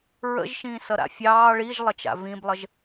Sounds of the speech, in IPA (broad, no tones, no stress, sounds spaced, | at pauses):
ɹ ə̰ ʒ ʃ ĩː s ʌ ɾ a̰ fʲ ɑː ɭ i ʒ lˠ ə t͡ʃ a̰ v ĩ b lˠ ə ʒ